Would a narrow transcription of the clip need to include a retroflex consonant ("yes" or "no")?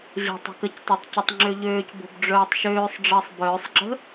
yes